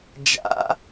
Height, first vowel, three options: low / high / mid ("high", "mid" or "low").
low